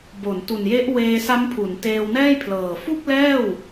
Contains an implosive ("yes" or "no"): no